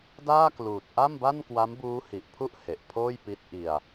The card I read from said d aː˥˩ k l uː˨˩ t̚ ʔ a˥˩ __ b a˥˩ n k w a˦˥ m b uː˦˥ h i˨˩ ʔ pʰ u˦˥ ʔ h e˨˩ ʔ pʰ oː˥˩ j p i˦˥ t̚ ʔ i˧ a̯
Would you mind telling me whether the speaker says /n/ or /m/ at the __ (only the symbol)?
m